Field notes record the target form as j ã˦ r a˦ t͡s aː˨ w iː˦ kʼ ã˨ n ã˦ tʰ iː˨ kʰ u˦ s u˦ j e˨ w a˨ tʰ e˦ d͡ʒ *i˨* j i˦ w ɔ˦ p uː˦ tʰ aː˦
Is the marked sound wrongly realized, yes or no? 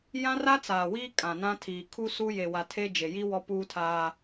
yes